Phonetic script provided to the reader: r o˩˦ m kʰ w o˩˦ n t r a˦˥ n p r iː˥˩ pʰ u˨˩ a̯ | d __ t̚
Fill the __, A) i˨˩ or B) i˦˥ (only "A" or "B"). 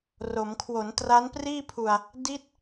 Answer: B